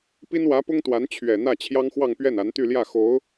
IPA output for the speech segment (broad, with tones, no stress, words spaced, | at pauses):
pi˥nwä˧˥pʊ˥ŋt̪wa˧˥n t͡ɕʰɥɛ˨˩n̪ä˥˩ t͡ɕʰjɑ˥ŋxwɑ˥˧ŋ pɥɛ˥˩na˧˥nt̪y˥˧ljä˥˩ xo˧˥ʊ̯